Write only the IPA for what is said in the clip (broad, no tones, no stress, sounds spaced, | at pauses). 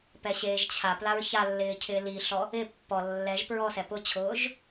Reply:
p ɛ ɕ eː ʒ t͡ɕʰ a p l a ɹ ç a lː ɪː cʰ ɪː l i ɬ ɔ | ɪ pː ɔ lː ɛ ʒ p ɹ ɔ s ɛ p ʊ t͡ɕʰ ʊː ʒ